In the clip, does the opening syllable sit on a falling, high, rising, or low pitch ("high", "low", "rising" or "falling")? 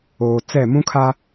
low